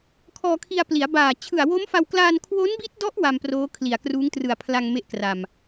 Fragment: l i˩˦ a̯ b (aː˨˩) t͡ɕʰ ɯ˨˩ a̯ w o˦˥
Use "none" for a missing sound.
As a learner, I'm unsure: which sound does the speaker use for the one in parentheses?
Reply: aː˨˩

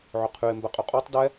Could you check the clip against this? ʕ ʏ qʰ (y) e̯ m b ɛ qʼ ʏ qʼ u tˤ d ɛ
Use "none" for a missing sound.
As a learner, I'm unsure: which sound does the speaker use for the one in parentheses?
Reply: y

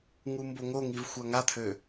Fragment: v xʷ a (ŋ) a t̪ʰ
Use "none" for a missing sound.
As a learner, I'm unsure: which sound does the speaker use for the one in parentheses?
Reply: ŋ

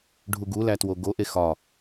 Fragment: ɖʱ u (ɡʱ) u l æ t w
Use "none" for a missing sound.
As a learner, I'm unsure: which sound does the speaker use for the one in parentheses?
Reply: ɡ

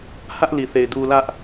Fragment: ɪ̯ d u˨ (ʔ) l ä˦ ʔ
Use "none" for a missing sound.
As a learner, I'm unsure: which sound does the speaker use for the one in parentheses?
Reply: none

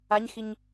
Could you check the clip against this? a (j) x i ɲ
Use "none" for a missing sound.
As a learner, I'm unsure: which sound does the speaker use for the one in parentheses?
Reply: ɲ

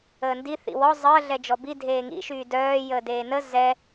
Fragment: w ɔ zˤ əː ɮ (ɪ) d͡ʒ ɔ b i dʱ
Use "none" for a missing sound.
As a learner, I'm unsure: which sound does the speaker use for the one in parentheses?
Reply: ɛ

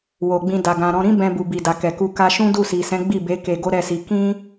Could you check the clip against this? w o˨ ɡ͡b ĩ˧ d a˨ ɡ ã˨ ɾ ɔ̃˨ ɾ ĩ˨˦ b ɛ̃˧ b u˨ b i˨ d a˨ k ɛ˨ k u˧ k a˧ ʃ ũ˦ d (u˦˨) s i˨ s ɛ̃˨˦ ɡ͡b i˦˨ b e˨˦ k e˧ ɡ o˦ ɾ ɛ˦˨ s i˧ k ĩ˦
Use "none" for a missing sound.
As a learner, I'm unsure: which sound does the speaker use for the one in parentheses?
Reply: u˦˨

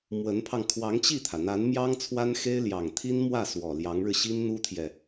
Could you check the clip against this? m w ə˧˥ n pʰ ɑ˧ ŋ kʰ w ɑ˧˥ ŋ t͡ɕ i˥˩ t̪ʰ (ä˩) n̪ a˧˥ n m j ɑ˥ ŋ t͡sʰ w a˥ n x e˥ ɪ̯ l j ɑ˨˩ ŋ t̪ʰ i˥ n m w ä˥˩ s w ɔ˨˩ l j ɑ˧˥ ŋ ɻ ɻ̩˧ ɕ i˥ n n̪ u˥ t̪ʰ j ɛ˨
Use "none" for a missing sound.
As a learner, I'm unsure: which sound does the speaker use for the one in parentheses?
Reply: ä˩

